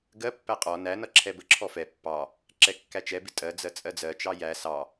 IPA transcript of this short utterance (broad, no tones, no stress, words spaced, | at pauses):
ɡɜpːæ qʼɔ nænʌ ǁʰɛbəǁʰɔ fɛ pːɑ | ǁɛkːæt͡ʃɛbɪ tʼɜd͡zɜ t͡sʼɜd͡zɜt͡ʃɑ jæ sɑ